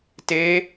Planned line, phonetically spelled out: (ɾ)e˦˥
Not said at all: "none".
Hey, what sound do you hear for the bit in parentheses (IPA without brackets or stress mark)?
t